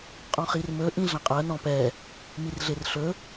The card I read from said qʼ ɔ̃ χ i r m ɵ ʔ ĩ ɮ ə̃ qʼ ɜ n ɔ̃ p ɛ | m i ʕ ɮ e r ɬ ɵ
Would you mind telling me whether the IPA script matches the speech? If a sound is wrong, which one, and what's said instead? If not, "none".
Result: ʕ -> r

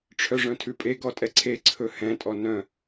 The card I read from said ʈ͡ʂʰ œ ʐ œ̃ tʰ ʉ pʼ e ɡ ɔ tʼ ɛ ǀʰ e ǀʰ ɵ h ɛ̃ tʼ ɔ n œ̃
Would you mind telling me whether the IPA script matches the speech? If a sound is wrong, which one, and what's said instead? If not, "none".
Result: none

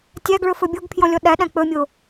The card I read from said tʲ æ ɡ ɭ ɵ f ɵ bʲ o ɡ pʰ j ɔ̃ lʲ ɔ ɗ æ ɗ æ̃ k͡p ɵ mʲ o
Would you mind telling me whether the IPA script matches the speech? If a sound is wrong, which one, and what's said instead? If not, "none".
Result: none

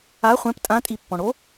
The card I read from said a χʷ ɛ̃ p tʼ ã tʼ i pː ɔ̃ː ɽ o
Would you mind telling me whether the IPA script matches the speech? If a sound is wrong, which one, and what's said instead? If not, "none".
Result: ɔ̃ː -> ɔ̃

